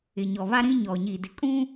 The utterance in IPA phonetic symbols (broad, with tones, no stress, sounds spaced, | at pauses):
ɪ˨ ɲ ɔ˨ β a˦ ɾ ĩ˦ ɲ ɔ˨ ɲ i˨ d ɪ˨ kʼ ũ˦